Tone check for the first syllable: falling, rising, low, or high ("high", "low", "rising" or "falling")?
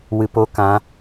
low